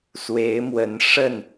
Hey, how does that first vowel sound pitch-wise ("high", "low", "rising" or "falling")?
rising